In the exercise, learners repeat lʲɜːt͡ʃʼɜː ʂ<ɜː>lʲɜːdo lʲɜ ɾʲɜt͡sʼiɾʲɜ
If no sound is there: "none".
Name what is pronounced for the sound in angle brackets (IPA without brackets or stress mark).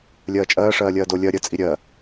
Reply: ɜː